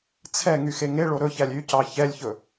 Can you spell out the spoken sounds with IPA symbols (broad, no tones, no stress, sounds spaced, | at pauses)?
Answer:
t͡sʰ ɛ ŋ y x e ŋ e ɭ o ɾ ɵ ç æ lʲ y c ɑ ç ɛ lʲ ç ɵ